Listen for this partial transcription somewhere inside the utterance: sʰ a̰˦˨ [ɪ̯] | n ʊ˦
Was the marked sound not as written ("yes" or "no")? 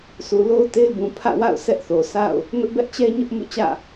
yes